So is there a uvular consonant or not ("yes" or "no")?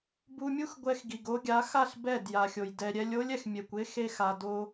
no